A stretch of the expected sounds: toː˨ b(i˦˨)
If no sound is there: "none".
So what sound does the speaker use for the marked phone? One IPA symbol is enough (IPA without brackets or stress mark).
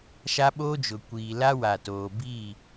i˦˨